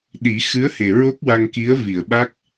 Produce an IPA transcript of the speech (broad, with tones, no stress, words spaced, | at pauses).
ɗi˨˩˦ xɨ˧˥ə̯he˨˩ ɹo˦˥k̚wa˧ŋ ki˧˥ə̯vi˨˩˨ə̯ɓa˦˥k̚